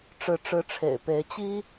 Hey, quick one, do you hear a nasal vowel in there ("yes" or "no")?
no